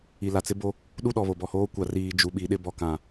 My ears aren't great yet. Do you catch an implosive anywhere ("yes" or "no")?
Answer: yes